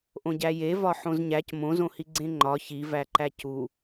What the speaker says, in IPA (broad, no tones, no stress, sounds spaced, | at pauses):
ʔ õ ɟ æ j e v ɒ ħ õ z ɲ æ c m õ z õ h i ɡ͡ǀ ẽ ŋ͡ǃ ɒ ç i v æ ǃ æ c u